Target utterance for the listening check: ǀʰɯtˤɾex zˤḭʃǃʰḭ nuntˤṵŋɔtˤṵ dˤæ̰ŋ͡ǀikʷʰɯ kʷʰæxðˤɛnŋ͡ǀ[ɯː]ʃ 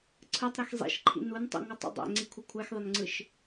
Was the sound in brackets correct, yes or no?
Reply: no